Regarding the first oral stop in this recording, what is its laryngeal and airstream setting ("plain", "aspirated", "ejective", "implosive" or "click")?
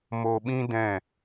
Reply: implosive